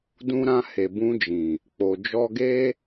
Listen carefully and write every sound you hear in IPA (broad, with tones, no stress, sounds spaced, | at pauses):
d ũ˧ ɾ ã˧ h e˨ b ũ˧ d͡ʒ ĩ˨ | k͡p o˨ d͡ʒ ɔ˧ ɡ e˦